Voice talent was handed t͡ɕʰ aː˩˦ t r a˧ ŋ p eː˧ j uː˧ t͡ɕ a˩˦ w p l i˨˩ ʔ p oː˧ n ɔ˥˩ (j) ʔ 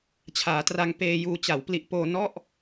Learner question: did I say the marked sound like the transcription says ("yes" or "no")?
no